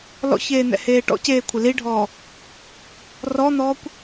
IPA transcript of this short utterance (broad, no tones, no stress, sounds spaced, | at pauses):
l ɔ̰ ç eː n̪ ɛ̰ h eː ʈ ɔ̰ c eː kʷʰ ɪ l i ɖʱ ɔː | r ɔ n̪ ɔː kʷ